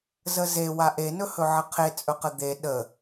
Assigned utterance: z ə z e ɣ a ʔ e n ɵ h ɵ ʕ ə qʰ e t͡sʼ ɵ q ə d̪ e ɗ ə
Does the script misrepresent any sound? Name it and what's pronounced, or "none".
ɣ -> w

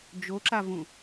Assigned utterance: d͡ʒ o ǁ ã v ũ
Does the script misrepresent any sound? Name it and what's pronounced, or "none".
ã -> a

